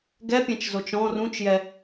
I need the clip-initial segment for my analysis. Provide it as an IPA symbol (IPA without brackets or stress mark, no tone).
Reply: ɡ